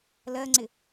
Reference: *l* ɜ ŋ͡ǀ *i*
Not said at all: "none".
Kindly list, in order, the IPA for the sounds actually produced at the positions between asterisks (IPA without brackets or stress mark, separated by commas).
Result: l, ɪ